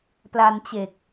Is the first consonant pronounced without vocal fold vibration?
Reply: yes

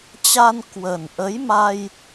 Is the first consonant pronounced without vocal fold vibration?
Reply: yes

